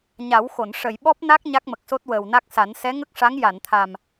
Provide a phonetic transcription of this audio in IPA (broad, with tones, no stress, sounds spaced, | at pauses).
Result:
ɲ a˨˩˦ w x o˨˩˨ n ʂ ə˨˩˨ j ɓ ɔ˦˥ p̚ n a˦˥ k̚ ɲ a˦˥ k̚ m ə˨˩ k̚ s o˦˥ t̚ w əː˨˩ w n a˦˥ k̚ s a˨˩˦ n s ɛ˧˥ ŋ ə˦˥ k̚ ʂ a˧˥ ŋ j a˨˩˨ n t̪ʰ a˨˩ m